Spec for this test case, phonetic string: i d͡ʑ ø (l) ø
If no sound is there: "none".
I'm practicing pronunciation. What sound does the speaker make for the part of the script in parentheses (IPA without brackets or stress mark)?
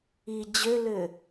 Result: l